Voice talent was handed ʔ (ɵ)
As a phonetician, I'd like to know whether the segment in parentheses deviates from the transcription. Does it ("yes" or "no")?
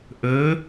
no